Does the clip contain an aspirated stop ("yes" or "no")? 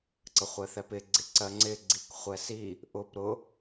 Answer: no